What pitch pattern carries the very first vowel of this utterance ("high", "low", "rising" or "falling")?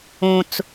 high